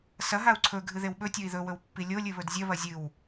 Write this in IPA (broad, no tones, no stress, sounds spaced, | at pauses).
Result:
s ɐ ɦ a u̯ ǀʰ ɵ ɡʱ ɨ ð e w ɓ ɵ tʲ o i̯ ð ɵ w ɵ w pː i lʲ o lʲ ɨ β ɵ d zʲ ɐ β ɐ zʲ ɨ w